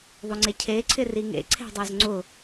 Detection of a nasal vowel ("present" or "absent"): absent